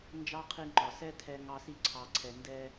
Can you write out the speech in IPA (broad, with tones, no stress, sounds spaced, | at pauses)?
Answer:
n d͡ʒ ɑ˦ qʰ i˧ ŋ͡ǃ ɒ˨ s ɛ˦ tʰ ɛ˧ ŋ ɑ˧ s i˧ ǀʰ ɑ˨ ǀʰ ɛ˨ n d ɛ˧